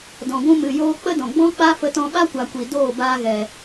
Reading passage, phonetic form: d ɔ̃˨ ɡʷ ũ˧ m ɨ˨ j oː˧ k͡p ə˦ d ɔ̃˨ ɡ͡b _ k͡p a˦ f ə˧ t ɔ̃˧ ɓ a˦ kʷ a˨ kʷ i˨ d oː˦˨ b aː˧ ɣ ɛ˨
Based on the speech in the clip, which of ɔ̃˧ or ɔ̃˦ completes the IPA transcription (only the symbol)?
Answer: ɔ̃˦